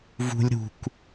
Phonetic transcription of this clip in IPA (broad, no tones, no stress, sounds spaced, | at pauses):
v ṳ lʲ ɾ ṳ k